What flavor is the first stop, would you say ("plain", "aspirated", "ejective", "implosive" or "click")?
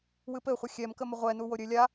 plain